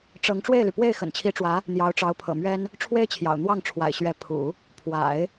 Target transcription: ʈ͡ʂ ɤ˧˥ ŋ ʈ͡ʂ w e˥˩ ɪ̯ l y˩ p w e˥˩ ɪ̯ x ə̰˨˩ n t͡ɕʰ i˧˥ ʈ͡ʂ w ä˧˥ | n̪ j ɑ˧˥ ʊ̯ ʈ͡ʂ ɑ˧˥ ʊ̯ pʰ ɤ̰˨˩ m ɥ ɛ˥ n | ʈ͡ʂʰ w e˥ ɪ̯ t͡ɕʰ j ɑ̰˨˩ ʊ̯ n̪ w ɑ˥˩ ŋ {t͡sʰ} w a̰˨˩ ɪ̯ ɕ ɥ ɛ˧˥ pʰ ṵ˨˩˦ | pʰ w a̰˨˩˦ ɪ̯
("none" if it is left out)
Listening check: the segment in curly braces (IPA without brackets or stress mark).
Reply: ʈ͡ʂʰ